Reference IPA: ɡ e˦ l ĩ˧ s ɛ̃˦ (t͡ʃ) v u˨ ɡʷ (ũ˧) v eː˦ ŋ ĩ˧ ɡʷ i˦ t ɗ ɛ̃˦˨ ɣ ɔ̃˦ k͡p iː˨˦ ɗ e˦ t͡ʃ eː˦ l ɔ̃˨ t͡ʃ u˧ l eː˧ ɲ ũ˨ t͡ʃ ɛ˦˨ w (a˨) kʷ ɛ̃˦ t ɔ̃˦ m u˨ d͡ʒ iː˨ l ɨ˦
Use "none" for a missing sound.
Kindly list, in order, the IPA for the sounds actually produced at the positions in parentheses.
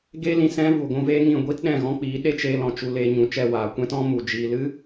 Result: none, ũ˧, aː˨

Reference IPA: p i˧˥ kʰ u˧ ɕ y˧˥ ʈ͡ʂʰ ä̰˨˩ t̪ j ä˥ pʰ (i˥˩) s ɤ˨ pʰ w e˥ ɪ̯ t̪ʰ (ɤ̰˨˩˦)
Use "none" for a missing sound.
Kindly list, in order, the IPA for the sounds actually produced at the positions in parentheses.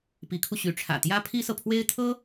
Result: i˥, ɤ˥

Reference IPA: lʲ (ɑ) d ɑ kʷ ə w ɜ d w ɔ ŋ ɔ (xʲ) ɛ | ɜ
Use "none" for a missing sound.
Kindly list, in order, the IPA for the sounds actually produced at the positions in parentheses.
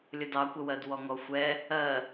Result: ə, xʷ

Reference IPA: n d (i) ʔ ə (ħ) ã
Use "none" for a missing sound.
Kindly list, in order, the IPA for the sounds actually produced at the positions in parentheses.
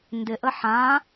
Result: ɪ, ħ

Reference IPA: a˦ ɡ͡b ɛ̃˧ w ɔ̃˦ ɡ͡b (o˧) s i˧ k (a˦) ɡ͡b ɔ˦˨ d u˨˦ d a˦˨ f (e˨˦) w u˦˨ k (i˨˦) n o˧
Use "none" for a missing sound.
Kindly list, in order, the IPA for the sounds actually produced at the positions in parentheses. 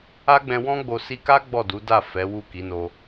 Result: o˧, a˦, ɛ˨˦, i˨˦

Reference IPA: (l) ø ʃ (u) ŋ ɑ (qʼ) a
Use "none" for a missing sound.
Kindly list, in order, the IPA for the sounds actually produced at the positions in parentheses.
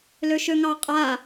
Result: l, ø, qʼ

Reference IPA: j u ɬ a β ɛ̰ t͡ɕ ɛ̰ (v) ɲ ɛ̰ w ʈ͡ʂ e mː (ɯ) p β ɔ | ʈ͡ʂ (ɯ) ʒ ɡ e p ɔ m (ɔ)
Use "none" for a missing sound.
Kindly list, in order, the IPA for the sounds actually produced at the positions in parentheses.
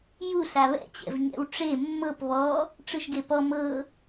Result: v, ɤ, ɯ, ɤ

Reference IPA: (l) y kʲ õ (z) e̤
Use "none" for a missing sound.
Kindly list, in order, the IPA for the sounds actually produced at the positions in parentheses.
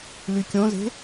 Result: l, z

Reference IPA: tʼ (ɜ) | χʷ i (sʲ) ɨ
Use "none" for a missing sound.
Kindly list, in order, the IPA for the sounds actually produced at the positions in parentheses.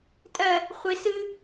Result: ɜ, s

